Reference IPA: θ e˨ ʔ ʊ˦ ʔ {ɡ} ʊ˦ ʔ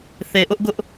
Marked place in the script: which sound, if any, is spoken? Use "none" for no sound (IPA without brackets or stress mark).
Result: ɡ